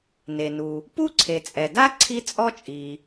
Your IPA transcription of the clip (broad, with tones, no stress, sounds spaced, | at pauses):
n e˩ n u˩ | p u˥ ǀʰ e˩ t͡sʼ ɛ˩ d a˥ ǀʰ i˥ t͡sʼ ɔ˥ t͡ʃʼ i˩